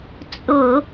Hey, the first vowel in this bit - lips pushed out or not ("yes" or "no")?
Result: yes